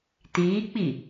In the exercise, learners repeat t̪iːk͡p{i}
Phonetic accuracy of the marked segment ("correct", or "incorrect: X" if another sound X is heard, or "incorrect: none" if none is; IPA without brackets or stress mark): correct